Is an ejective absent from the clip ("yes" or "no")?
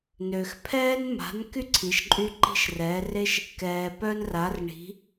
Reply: no